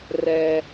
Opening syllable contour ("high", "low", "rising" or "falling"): high